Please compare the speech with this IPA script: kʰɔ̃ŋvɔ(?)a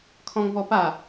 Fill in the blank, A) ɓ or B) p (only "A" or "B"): B